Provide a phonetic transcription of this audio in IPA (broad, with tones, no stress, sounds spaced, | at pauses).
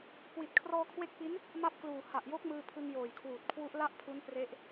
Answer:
k w i˨˩ t̚ kʰ r ɔː˧ kʰ w e˦˥ k̚ p i˦˥ n | m a˦˥ p̚ k l uː˨˩ h a˨˩ ʔ j o˦˥ k̚ m ɯː˧ pʰ ɯ˧ ŋ j oː˨˩ j kʰ w uː˨˩ t̚ kʰ w u˦˥ ʔ l a˥˩ ʔ pʰ u˦˥ n p r e˦˥ ʔ